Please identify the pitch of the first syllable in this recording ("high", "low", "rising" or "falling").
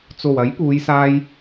low